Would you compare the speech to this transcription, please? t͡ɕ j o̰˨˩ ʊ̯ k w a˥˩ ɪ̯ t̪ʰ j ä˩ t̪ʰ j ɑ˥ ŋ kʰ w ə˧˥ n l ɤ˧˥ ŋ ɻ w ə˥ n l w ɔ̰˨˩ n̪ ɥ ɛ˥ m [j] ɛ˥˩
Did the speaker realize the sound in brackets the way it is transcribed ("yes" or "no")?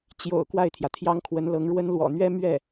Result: no